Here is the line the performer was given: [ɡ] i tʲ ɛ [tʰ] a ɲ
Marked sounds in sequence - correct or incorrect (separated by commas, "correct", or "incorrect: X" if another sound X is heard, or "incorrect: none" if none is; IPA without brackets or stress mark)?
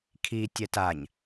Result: incorrect: kʰ, incorrect: t